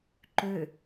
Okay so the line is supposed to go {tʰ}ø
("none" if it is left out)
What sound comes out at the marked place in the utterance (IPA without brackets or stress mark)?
ǃ